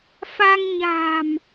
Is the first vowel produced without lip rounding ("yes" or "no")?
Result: yes